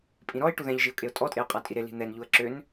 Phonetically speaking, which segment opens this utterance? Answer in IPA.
pʼ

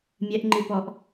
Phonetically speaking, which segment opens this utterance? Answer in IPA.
mʲ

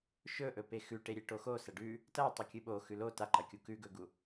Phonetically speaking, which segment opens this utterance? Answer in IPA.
ʃ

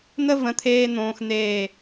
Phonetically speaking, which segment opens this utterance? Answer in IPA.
n̪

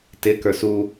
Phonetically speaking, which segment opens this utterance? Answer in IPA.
t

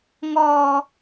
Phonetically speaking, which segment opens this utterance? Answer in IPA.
ŋ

